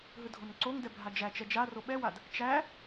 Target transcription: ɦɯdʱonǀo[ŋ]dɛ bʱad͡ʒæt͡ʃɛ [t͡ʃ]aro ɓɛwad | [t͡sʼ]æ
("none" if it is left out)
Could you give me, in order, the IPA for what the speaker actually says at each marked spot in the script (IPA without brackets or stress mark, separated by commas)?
ŋ, d͡ʒ, t͡ʃ